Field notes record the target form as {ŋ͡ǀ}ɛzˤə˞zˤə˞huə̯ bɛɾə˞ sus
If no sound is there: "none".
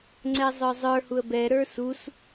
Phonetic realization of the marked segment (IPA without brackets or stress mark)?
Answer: ŋ͡ǀ